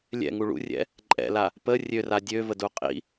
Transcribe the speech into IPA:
lʲ ɛ̰ ŋ u ɭ ṵ rʲ ɛ̰ | ǃʼ ɛ̰ l a | p ə rʲ ø r a dʲ ø v ə d u qʼ ḭ

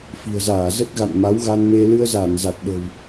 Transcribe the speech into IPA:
f i̤˨˩ ə̯ z aː˧˩ z ə˦˥ t̚ ɣ a̰˧˨ n m a˨˦ w ɣ a˧ n m e˧ l ɨ˧ ə̯ z a˧˩ n z a˨˩ t̚ ɗ ə̤˨˩ w

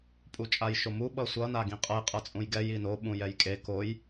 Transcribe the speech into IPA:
pʼ u t͡ʃʼ a j ʃ o m u ɓ ʌ sʷ ʌ n a ɡ ĩ qʼ ʌ j qʼ ʌ t͡sʼ ũ j ɡ ɛ j i n o ɓ ũ j ɛ j kʼ e k o j

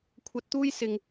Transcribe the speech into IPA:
kʷʰ ɐ˧ t̚ t̪ uː˥ j s ɪ˨ ŋ

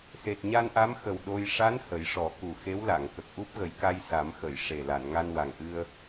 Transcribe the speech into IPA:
s e˨˩ t̚ ɲ a˧ n ʔ a˧˥ m x ə˨˩ w ɗ o˧ j ʂ a˧˥ n h ə˨˩˦ j ʂ ɔ˨˩˦ k u˨˩ x e˧˥ w l a˨˩˨ ŋ k ə˨˩ k̚ ʔ u˦˥ p̚ ɣ ə˨˩˦ j k a˧ j s a˨˩˦ m x ə˨˩˨ j ʂ e˨˩ l a˨˩˨ n ŋ a˧ n w a˨˩ ŋ ʔ ɨ˧ ə̯

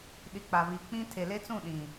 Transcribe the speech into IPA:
ɗ i˨ k͡p a˨ β i˨ k͡p ĩ˦ tʰ e˨ l e˦ t͡s ũ˦˨ ɗ ĩ˨

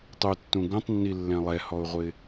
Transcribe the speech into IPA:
tˤ u tː ũ ɡ ũ tˤ nː i lː ɛ̃ lˠ ɛ h ɔ ʊ̯ ʁʷ ɪ

